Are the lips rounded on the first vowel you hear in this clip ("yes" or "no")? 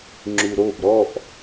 yes